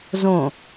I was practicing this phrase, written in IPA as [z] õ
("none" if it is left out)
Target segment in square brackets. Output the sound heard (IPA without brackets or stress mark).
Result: z